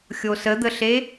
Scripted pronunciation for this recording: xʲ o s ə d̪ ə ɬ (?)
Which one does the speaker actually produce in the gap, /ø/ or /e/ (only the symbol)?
e